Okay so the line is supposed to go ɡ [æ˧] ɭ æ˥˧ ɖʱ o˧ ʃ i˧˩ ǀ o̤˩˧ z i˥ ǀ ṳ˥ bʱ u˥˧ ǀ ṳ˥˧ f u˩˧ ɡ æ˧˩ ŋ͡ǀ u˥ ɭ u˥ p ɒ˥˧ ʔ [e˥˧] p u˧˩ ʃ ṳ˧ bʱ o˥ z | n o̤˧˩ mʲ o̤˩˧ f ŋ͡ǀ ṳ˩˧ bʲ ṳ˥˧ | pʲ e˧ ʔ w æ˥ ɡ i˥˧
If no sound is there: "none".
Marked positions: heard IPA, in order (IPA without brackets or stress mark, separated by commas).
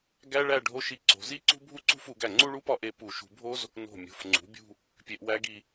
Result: æ˥, e˧